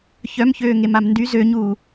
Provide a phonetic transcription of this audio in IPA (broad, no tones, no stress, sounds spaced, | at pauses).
ç œ m ç øː ŋ e m a m n d y z ø ɲ uː